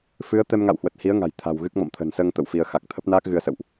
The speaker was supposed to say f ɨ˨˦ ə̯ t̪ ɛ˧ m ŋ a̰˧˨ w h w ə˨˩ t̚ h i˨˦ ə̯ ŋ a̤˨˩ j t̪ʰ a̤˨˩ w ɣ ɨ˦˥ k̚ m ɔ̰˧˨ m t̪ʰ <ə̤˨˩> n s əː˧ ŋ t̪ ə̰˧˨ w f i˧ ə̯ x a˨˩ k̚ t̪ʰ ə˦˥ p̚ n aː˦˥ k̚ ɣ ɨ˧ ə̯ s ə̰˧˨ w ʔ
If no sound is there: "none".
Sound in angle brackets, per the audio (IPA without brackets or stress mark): ə̤˨˩